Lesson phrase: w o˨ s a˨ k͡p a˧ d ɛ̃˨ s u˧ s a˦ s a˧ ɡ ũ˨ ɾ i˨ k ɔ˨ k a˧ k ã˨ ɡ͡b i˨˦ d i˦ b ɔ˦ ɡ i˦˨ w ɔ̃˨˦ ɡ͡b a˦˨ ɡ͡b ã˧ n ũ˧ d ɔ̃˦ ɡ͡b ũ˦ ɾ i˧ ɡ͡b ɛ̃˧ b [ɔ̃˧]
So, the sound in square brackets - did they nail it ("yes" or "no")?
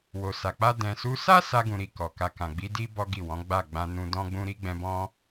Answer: no